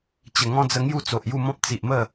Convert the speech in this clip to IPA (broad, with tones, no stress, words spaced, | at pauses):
t͡ɕə˨˩ŋɔ̃˦d͡zə˧ ŋju˥˧t͡so˨ʔju˥˧mɔ̃˦p̚ t͡si˨ʔmə˥˧